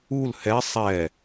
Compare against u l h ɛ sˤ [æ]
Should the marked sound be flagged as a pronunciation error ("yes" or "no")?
yes